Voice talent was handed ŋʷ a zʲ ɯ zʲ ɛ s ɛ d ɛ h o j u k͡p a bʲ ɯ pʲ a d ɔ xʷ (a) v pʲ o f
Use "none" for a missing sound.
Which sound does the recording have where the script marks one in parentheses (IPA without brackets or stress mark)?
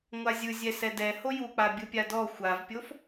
a